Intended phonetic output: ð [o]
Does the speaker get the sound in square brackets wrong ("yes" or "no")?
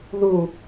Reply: yes